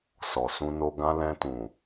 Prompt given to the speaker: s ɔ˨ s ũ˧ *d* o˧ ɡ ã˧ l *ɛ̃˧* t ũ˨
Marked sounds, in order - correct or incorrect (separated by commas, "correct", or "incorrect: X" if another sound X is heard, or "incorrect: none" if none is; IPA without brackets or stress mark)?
incorrect: n, correct